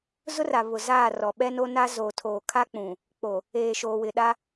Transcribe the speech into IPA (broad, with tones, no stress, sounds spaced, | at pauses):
z ʊ˦ r a˨ β ʊ˨ z aː˦˨ r ɔ˨ ɓ ɛ˦ n o˦ n a˦ z o˨ tʰ oː˨ kʰ a˦ k͡p ũ˨ | k͡p o˨ | eː˨ ʃ oː˨ w ɪ˨ ɗ a˦